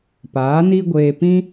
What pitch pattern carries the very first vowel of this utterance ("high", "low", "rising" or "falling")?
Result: rising